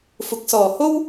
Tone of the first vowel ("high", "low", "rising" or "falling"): low